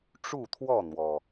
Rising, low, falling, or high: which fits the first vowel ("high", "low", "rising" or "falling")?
falling